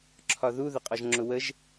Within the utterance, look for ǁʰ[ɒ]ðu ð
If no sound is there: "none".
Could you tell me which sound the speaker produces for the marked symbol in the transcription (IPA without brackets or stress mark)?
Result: ɒ